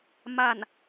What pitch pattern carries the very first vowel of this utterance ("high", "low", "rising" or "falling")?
falling